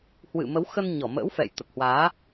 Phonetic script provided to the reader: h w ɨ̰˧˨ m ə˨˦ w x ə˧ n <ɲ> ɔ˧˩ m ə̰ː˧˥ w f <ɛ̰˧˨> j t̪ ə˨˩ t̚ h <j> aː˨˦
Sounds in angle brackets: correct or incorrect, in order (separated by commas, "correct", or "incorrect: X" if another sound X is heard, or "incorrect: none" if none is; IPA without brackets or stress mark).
correct, correct, incorrect: w